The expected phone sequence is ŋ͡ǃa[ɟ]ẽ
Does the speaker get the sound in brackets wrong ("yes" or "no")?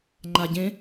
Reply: no